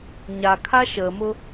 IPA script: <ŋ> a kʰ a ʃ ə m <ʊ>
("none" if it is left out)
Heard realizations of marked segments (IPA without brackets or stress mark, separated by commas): ɲ, ʊ